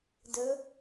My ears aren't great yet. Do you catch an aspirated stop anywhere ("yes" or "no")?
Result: no